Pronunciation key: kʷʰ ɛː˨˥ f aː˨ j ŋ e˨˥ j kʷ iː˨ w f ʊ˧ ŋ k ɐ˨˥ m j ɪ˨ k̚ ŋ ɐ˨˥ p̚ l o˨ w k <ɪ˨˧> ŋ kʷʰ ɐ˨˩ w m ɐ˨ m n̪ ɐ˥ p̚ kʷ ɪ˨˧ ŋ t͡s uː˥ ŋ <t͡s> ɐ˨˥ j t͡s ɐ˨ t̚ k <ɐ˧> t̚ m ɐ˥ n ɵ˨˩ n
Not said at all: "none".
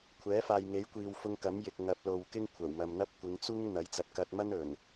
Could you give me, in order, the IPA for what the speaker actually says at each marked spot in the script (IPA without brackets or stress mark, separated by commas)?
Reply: ɪ˥, n̪, ɐ˧